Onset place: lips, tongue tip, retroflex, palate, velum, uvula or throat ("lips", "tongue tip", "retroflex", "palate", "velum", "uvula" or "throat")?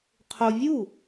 uvula